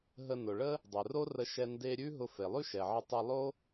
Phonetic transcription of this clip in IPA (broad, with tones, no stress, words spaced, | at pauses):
ɦə˧nʊ˩ɭə˥ | dˤe˩ro˥ rə˧ʃɛ˧ nde˧ ɾʲʉ˥ ɦʊ˧ fe˩lˠʉ˥ʃɛ˩ʕə˧ tˤɛ˧lˠo˥